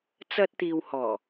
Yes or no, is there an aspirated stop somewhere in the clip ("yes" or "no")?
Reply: no